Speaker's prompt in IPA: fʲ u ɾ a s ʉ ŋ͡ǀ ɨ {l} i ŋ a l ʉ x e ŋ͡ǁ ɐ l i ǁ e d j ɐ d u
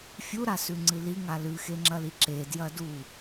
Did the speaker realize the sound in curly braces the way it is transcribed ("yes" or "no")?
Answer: yes